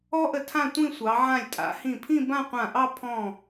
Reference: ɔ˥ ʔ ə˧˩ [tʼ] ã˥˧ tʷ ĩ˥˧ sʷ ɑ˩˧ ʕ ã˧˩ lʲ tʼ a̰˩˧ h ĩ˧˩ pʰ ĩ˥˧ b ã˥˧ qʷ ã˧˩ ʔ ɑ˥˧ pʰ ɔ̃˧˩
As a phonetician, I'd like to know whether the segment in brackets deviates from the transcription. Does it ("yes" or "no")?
yes